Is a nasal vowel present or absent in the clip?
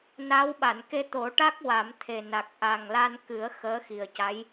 absent